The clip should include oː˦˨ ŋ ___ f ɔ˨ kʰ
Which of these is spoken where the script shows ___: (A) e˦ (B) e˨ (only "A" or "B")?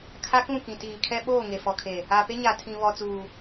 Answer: B